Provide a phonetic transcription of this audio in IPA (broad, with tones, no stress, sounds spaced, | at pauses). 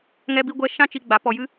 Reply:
ŋ ɛ˦ b i˦ ɡʷ ɛ˦ ʃ ã˦ t͡ʃ i˧ ɡ͡b a˨˦ p ɔ˧ j ɨ˦